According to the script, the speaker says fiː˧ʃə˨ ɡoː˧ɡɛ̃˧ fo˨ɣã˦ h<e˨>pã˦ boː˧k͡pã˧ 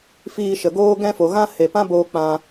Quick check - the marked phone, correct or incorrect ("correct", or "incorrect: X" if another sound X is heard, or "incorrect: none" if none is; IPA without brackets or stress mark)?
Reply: correct